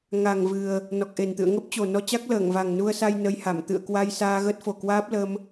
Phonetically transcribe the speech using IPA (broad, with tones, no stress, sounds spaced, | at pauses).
ŋ a˨˩ ŋ v ɨ˨˩ ə̯ | n ɔ˨˩ k̚ ʔ e˨˩ n t̪ ɨ̰˧˨ ə̯ ŋ ə˦˥ p̚ t͡ɕ o˨˩ n ɔ˧ t͡ɕ a˦˥ k̚ l əː˧˩ ŋ v a˨˩ ŋ n u˧ ə̯ s a˧ j n ə˧ j h a˧˩ m t̪ ɨ̰˧˨ ə̯ k w a˧ j s aː˧ ɣ ə˦˥ t̚ f o˨˩ k w aː˦˥ p̚ l ə˧ m